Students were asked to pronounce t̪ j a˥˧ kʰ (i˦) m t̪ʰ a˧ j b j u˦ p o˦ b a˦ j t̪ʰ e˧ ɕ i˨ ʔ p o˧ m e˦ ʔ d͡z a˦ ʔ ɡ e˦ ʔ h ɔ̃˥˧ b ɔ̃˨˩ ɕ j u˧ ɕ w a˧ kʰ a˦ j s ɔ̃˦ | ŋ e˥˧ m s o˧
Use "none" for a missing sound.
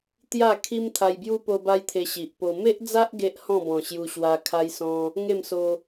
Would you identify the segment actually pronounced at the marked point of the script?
i˦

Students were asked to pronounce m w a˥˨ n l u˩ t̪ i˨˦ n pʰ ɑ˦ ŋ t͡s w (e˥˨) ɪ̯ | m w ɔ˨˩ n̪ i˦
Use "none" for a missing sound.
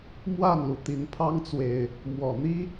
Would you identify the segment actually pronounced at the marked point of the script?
e˨˩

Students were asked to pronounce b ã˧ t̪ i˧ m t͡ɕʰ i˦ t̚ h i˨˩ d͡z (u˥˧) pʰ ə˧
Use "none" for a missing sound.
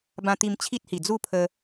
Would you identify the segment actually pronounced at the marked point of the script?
u˥˧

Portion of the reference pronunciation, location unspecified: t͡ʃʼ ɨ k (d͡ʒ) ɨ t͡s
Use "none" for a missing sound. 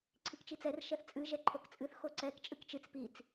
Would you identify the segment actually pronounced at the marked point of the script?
t͡ʃ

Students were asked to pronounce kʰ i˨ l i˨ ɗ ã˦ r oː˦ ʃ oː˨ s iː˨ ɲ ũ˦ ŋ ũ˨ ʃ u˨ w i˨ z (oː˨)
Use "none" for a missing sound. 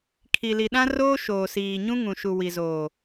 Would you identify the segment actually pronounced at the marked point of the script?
oː˨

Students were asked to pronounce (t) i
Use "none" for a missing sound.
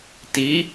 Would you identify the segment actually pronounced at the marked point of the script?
t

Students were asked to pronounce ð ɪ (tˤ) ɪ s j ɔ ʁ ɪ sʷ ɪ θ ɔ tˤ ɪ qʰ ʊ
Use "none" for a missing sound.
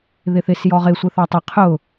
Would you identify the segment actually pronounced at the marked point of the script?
θ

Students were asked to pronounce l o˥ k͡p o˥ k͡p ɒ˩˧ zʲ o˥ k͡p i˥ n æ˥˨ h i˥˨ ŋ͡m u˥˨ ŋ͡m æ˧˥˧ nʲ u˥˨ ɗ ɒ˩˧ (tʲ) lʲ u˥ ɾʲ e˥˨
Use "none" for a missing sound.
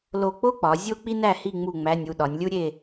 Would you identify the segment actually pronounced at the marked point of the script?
nʲ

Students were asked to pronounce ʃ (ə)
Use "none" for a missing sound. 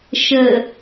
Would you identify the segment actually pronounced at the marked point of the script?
ə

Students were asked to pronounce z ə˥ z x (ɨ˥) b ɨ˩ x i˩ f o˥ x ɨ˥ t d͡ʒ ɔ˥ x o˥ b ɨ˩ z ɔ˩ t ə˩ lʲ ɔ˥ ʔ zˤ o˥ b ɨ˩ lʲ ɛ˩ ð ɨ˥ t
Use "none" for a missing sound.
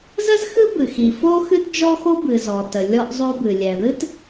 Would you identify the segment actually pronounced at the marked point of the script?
ɨ˥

